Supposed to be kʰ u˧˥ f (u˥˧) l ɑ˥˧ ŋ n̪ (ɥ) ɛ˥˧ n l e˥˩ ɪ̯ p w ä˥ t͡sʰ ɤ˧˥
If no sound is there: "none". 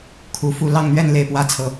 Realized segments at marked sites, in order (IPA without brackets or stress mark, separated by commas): u˥˧, ɥ